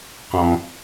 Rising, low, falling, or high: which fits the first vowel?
low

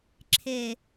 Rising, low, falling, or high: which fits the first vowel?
low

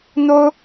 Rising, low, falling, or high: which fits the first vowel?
high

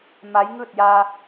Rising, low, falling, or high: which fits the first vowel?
rising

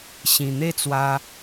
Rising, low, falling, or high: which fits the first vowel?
low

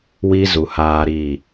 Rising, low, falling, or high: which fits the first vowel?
high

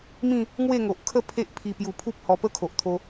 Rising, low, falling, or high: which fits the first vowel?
falling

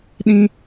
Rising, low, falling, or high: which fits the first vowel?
high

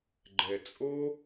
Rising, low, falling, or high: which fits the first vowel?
low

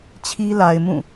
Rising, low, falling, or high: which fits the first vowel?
high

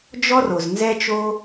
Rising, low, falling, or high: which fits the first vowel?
high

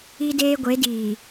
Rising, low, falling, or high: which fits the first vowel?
high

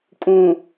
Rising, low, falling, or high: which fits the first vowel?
low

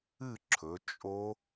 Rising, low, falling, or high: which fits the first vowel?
falling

